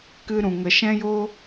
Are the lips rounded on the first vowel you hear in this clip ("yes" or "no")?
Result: no